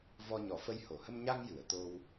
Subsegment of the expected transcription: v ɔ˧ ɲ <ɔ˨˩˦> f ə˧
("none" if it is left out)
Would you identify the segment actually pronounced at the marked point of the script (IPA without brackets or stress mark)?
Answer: ɔ˨˩˦